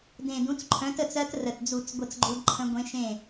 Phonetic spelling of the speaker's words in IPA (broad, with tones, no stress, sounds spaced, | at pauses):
d ẽ˨˩ d ũ˨˥ t͡s ǃʰ œ̃˨˥ t ə˥˩ t͡s ɜ˦˥ t r ə˨˩ t d͡z u˧˩˧ t͡s ɡʷ ə˥˩ t͡s ɡ͡ǃ u˦˥ d ǃʰ ə̃˦˥ ɡʷ ẽ˦˥ ʃ ẽ˥˩